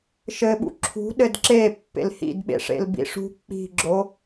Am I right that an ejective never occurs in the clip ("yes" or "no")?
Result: yes